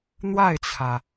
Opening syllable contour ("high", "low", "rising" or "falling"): falling